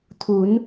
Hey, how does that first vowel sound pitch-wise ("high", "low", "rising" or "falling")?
rising